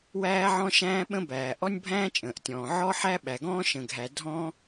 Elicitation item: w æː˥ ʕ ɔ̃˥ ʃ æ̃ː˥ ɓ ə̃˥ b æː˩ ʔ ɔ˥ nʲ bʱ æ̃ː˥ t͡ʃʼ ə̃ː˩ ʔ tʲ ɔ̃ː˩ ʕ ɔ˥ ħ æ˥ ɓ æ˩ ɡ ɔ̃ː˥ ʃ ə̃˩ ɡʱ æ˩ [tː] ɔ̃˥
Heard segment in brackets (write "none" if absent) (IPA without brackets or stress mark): dʱ